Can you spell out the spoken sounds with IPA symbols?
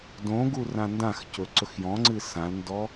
d õ ɡ u r ã n d ã x c ɵ ǀ ɵ x j ɔ̃ ŋ͡ǀ ɨ s ã l n d ɔ

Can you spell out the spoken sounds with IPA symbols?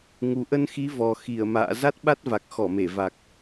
ŋ u˨˩ ʔ ə˧ n x i˨˦ v ɔ˨˩ x i˧˩ ə̯ m a̰ː˧˨ z a˦˥ t̚ ɓ a˦˥ t̚ v a˨˩ k̚ x ɔ˧˩ m e˧˩ v a˨˩ k̚

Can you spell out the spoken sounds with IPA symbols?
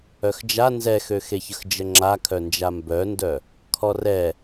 œ x d͡ʒ a n z ɛ x ø x e ç ə x d͡ʒ ə ŋ͡ǁ a kʰ œ n d͡ʒ a m b œ n d œ | kʰ ɔ r ɛ

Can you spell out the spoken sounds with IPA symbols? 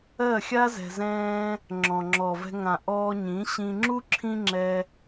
ɜ˦˨ xʲ a˦ z ɛ̤˧ z ɛ̃ː˦ | ŋ͡ǁ ɔ̃˨ ŋ͡ǁ ɔ˨ v ɛ̤˧ ŋ ã˨ ʔ ɔː˧ ɲ ĩ˨˦ ɕ ĩ˧ ŋ͡ǁ u˦ ǁʰ ĩ˦ ŋ͡ǁ ɛ˦

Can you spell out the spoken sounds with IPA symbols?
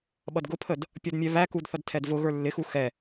ɓ ʌ d ɡ ʊ pʰ ə d | pʲ ɔ d mʲ ɛ β æ k u d θ ʌ d tʰ ɛ d v ʊ ɣ ə˞ lː ɪ x u x ɛ

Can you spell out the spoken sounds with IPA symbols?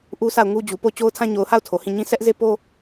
ʔ u˦ s a˦˨ ʊ̯ ŋ u˦ d͡ʑ u˨ p o˦˨ ʊ̯ t͡ɕ o˦ ʊ̯ tʰ ã˦ ɲ o˨ ʊ̯ h a˦˨ ʊ̯ tʰ o˨ h ĩ˦˨ ɲ ĩ˦ s ɛ˦ ʔ z e˦ p o˦

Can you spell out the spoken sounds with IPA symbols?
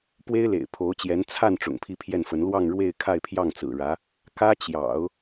p w e˥ ɪ̯ l ḛ˨˩ ɪ̯ pʰ o˧˥ ʊ̯ t͡ɕ j ɛ˧˥ n t͡sʰ a˥˩ n ʈ͡ʂ ʊ̰˨˩ ŋ pʰ i˥˧ pʰ j ɛ˥˩ n f ə˧˥ n l w ɑ˥˧ ŋ ɻ w e˥˧ ɪ̯ kʰ a˥˧ ɪ̯ pʰ j ɑ˥˩ ŋ t͡s ɹ̩˨˩ ɻ ä˧˥ | k ä˥ t͡ɕ j ɑ̰˨˩˦ ʊ̯

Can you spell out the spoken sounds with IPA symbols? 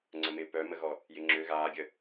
ŋ͡ǀ ə m ɪ p œ m ə ɣ ɔ | j ɪ ŋ͡ǁ ø ɣ aː ɡʲ ə

